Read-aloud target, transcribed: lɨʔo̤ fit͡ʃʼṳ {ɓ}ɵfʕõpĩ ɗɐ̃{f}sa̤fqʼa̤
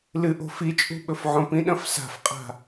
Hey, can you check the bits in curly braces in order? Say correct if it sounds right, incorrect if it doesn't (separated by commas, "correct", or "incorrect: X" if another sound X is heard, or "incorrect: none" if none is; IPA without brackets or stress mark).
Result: correct, correct